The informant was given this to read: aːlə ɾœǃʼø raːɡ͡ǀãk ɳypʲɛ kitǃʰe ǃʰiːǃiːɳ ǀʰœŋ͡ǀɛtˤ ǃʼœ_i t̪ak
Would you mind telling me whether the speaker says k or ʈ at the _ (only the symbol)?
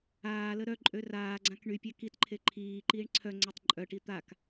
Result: ʈ